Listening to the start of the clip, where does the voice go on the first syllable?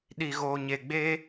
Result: low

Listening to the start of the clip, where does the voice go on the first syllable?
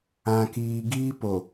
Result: low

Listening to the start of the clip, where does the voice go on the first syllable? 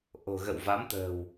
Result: low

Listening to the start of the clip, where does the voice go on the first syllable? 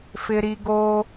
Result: high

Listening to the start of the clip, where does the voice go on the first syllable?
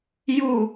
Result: falling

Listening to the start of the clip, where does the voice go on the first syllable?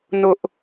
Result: high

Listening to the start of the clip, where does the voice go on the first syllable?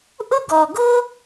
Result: high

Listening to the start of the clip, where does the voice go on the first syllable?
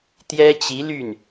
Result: high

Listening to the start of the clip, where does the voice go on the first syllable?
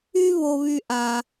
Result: high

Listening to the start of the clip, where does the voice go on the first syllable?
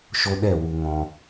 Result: high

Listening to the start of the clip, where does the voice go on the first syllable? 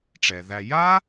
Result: low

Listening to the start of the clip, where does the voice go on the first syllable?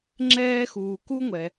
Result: high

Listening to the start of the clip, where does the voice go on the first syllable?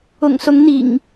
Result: low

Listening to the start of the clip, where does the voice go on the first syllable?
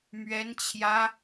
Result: high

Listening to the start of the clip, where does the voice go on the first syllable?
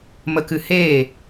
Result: low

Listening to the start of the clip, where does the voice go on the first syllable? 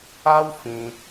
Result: high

